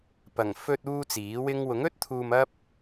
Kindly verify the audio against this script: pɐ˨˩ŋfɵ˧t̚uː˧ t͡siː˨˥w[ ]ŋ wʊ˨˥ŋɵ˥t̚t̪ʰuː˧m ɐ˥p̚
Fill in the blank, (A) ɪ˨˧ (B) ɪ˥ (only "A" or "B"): B